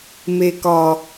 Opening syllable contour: low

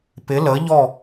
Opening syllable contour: rising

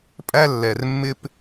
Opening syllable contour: high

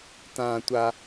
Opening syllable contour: low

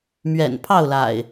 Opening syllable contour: low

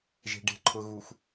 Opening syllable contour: low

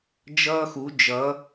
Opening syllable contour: high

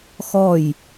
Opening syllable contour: falling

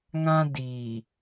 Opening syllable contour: high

